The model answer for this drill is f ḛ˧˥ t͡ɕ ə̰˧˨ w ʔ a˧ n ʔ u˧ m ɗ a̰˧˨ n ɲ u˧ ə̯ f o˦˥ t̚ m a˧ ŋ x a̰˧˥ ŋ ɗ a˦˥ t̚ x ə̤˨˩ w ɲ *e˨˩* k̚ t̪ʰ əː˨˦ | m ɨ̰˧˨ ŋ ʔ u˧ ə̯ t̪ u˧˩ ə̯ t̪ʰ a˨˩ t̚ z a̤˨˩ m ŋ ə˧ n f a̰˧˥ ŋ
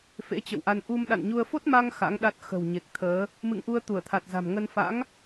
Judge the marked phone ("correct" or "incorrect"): correct